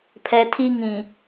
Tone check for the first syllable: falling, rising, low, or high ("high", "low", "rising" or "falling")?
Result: low